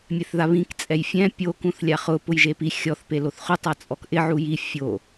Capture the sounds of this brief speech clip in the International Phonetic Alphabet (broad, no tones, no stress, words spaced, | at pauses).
mʲɛθðaβĩk t͡sʼɛjfʲɛ̃ pʲo kũθlʲaχʊ pʊjʒepi xʲɔθ peloθχʊ tˤat͡sʼɔkʔɪ ʕuji fʲo